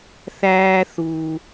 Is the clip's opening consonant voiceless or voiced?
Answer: voiceless